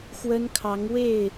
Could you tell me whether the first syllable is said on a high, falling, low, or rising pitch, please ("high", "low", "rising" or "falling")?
high